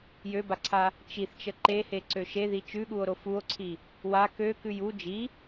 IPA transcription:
j ø b a ǀʰ a | t͡ʃ i θ t͡ʃ ə ǃ e h e ǀ ø ʃ e ð i t͡ʃ ʉ ɠ u o̯ ɾ o f u o̯ ǀʰ i | w a k ø k ʉ j u d͡ʒ i

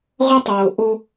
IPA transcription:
ʁʷ ɐ˦ tˤ oː˨ ʔ o˦

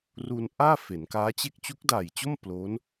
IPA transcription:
r u˧ n ʔ aː˥˩ f e˩˦ n k aː˦˥ t͡ɕ e˥˩ k̚ t͡ɕ u˦˥ k̚ d aː˨˩ j t͡ɕ o˥˩ m p l o˦˥ n

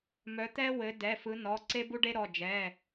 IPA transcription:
m œ˨˦ t̪ ɛ˥ w ɘ˨˦ d ɛ˩˧˩ f ɯ˨˦ n ɔ˩˧˩ ǀ e˥ b u˥ ɖ e˥ ɾ ɔ˩˧˩ d͡ʒ ɛ˩˧˩

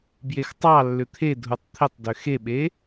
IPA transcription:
b j e x tˤ ɑ lː ʏ t̪ʰ e dʱ u tˤ t̪ʰ ɪ tˤ d ø x e ɓ e

